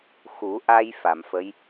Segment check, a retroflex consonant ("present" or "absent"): absent